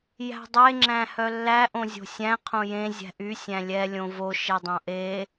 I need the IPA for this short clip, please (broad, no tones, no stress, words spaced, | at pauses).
jæ̤dˤe ŋ͡ǁæ̃hœlːæ ʔõzʲo̤sʲæ̃ qʰõjẽ zʲæ̤ʔy sʲæ̃lʲɛ lʲõvo ʃedˤõʔe